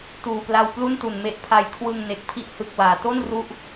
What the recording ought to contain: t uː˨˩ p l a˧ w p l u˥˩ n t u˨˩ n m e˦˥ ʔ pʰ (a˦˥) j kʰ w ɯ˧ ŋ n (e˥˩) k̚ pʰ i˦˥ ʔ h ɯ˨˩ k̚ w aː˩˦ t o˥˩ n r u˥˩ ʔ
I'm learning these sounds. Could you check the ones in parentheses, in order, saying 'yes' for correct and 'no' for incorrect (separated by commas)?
no, no